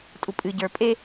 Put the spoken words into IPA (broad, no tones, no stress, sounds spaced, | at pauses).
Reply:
tʼ u pʼ ɨ ɟ ə˞ pʼ e